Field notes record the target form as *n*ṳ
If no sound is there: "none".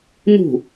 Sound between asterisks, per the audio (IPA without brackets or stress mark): n